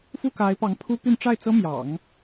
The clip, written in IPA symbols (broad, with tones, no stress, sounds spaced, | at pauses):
f u˥˩ k a˧˥ ɪ̯ p ɑ˧˥ ŋ pʰ u˥ p y˥˧ n ʈ͡ʂ a˥˩ ɪ̯ t͡s ɤ˥ m j ɑ̰˨˩˦ ŋ